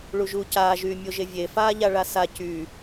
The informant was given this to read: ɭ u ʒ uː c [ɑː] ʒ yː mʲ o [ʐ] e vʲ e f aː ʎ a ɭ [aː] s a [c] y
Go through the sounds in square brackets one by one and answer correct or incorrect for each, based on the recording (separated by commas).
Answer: incorrect, incorrect, incorrect, correct